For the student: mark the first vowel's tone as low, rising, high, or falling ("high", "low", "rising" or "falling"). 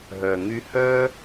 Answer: low